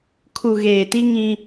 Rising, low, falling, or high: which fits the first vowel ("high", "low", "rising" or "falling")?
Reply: low